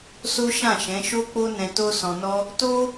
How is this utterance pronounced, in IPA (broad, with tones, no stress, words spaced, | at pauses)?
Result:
so˦ʃã˦˨ʃɛ̃˨˦ ʃo˦k͡po˦ nɛ̃˧to˦sɔ̃˧nɔ˦ | to˦